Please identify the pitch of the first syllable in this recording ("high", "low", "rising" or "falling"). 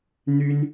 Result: high